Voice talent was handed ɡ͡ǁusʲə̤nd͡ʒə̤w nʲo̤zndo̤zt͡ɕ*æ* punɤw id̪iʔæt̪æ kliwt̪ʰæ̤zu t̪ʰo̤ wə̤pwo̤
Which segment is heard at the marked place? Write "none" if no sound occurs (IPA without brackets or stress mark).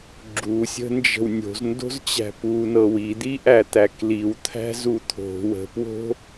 æ̤